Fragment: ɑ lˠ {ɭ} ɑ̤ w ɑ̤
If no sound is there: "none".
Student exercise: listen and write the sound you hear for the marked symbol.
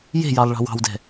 ɭ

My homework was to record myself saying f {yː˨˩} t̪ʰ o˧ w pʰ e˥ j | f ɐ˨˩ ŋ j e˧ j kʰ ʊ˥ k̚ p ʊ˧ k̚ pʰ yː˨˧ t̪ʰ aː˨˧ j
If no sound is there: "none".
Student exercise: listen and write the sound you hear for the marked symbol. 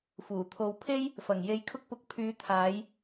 uː˨˩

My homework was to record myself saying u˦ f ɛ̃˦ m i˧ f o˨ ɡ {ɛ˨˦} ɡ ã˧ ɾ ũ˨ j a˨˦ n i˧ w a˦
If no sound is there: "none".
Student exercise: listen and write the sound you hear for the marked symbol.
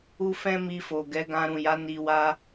ɛ˨˦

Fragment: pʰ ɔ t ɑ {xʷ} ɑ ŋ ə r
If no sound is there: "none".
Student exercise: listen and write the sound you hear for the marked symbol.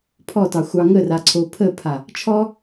xʷ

